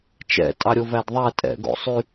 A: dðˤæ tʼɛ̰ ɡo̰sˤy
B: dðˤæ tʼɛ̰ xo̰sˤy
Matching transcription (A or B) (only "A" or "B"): A